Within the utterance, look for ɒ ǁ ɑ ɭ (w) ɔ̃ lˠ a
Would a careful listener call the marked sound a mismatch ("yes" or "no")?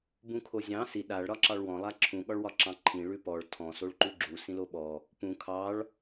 no